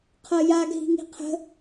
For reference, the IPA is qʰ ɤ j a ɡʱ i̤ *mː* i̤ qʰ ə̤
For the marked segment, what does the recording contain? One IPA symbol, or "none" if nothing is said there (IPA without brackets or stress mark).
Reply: ŋ